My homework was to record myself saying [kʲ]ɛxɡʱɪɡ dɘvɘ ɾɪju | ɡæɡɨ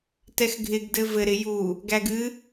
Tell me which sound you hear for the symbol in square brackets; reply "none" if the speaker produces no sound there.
t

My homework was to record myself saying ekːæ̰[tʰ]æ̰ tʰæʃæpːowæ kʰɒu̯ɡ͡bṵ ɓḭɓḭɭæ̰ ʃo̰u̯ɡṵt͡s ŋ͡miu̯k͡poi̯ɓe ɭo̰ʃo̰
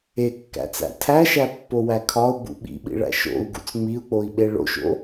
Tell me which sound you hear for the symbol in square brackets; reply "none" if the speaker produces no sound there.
t͡s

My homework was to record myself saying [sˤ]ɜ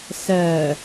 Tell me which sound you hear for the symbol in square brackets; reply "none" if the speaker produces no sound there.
s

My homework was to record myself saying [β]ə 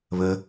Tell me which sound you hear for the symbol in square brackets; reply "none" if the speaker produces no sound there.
β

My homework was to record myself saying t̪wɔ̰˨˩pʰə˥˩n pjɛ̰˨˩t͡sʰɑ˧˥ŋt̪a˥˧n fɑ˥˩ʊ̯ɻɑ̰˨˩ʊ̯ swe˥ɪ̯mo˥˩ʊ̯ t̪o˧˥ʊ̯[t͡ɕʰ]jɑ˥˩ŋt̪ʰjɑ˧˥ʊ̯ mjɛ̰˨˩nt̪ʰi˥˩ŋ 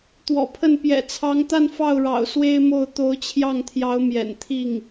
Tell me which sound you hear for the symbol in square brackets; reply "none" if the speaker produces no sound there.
t͡ɕʰ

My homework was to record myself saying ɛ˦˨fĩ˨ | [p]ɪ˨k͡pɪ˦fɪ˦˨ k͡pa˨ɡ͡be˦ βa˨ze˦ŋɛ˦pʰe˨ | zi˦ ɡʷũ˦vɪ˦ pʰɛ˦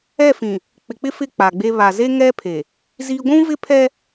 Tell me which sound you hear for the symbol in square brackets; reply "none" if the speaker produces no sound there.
k͡p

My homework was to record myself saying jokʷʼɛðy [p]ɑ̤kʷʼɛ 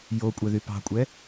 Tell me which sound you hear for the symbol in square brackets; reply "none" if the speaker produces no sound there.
p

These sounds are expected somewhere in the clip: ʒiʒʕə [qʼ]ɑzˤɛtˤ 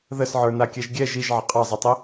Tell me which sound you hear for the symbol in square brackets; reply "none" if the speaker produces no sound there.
qʼ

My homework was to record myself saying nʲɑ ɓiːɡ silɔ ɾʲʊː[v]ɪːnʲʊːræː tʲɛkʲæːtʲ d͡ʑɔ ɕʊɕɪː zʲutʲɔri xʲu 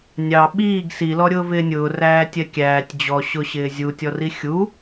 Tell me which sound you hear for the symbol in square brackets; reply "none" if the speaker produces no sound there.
v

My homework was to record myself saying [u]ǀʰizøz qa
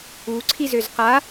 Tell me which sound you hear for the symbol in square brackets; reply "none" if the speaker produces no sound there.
u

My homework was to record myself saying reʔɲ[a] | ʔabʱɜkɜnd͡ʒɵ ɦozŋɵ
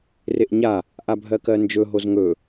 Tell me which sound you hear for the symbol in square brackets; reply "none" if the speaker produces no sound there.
a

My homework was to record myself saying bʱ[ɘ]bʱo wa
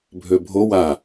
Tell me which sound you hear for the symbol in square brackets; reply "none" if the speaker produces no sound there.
ø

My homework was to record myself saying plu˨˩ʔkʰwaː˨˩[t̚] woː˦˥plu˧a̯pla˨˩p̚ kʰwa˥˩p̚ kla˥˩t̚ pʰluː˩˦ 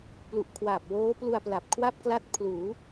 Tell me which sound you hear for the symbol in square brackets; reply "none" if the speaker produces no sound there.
p̚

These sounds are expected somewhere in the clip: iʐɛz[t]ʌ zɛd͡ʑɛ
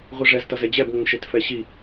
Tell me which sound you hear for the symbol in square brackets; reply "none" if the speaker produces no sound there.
t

